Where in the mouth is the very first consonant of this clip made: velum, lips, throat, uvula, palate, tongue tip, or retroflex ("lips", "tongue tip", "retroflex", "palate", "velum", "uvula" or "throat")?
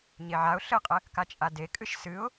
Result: palate